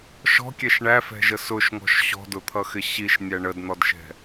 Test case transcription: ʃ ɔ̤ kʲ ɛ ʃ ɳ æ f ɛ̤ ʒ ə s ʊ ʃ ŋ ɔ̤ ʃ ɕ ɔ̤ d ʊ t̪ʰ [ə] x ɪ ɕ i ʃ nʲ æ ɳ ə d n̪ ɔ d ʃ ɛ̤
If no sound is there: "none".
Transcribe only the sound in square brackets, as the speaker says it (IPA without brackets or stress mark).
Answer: ʌ